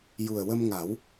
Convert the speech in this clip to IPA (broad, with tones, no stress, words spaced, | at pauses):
ju˨˩ə̯wə˧mŋa˨˩˦w